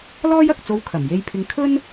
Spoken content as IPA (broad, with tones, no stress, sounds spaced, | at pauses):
l ɔː˥ j ɐ˨ k̚ t͡s o˧ w kʰ ɐ˨˩ m j e˧ j pʰ ɪ˧ ŋ kʰ ɵ˥ n